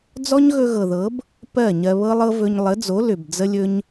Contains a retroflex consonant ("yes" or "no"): no